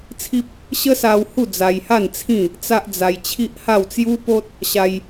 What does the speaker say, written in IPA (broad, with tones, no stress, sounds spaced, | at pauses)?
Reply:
t͡sʰ i˦ p̚ | ɕ ə˦ s a˧ w h u˥˧ d͡z a˧ j h a˥˧ n t͡sʰ ĩ˥˧ | t͡s a˦ ʔ d͡z a˧ j t͡ɕʰ i˦ ʔ h a˥˧ w t͡s j u˦ p o˦ t̚ | ɕ a˧ j